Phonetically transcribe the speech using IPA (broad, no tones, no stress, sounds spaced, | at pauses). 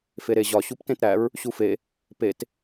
f e ɾ e ʑ ɒ ɕ u p t ẽ t ɾ æ ɹ | ɕ u f e | p e t